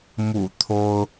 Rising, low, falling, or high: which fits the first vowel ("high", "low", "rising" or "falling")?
low